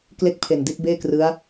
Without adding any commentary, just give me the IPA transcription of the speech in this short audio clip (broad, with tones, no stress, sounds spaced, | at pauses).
k l e˥˩ k̚ pʰ e˨˩ n d i˦˥ t̚ b eː˥˩ k r ɯ˦˥ a̯